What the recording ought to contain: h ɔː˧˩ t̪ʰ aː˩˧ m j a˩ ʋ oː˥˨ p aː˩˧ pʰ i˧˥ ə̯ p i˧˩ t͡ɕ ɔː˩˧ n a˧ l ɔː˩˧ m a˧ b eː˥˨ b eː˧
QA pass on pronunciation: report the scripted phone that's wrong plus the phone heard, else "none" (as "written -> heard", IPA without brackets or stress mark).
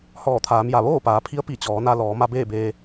none